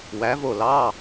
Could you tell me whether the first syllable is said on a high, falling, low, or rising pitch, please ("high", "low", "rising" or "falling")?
rising